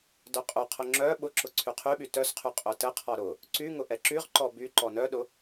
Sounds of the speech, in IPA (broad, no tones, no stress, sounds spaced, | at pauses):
d œ qʼ ʊ qʰ ʊ ŋ͡ǁ œ ɓ ʊ ǁ ʊ ǀʰ y qʰ y ɓ y t œ s qʰ y qʼ œ t ə qʰ ɔ ɾ ʊ | ǀ y ŋ ʊ ʔ ɛ ǁ y ʁ ǃ ɔ b y ǃ ɔ n œ ɗ ʊ